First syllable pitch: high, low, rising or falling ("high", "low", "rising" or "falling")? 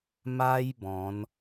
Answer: high